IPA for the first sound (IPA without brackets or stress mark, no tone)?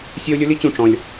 sʲ